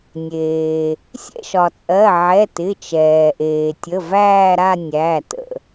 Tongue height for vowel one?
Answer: mid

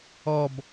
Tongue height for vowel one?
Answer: mid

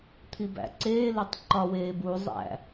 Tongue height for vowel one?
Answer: high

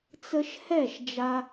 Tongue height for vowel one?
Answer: mid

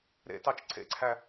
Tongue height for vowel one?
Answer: mid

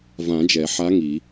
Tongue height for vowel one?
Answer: low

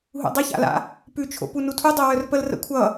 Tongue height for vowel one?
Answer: high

